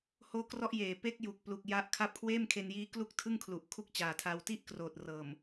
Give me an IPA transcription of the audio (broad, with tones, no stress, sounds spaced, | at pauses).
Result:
h oː˦˥ k r ɔ˦˥ ʔ j eː˨˩ p e˦˥ k̚ j u˨˩ k̚ p l u˨˩ k̚ j a˦˥ ʔ kʰ a˦˥ p̚ kʰ w eː˥˩ m kʰ e˧ n j iː˦˥ k l u˥˩ k̚ tʰ ɯ˥˩ ŋ kʰ l u˨˩ ʔ kʰ u˥˩ k̚ t͡ɕ aː˨˩ tʰ a˧ w t i˥˩ ʔ k r oː˨˩ t̚ r ɤː˨˩ m